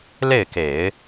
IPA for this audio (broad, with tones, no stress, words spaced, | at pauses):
le˥˩ɪ̯ke˨˩˦ɪ̯